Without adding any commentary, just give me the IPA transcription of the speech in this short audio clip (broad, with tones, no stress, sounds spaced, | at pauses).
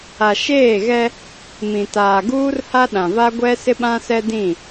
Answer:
a˨ ʃ eː˦˨ ɣ ɛ˦ | m ĩ˨ t aː˨ ɡ uː˦ r h a˦ ɗ ã˨ v a˦ ɡʷ ɛ˦ s ɪ˦ ɓ ã˦ s ɛ˦ d ĩ˦˨